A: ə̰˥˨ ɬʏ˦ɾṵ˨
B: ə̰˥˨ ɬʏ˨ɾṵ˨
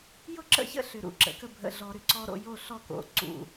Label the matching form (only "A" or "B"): B